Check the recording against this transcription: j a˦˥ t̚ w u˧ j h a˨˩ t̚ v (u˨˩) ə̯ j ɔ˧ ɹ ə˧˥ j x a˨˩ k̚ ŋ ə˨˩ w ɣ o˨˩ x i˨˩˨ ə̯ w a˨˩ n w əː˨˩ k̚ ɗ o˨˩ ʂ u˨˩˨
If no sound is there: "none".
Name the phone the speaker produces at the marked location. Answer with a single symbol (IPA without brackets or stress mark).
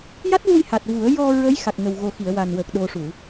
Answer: u˨˩˦